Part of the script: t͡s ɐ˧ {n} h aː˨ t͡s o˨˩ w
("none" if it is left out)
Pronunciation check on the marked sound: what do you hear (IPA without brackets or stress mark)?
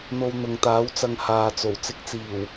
ŋ